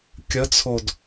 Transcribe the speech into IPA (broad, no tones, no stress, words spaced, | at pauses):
kʲət͡sʰod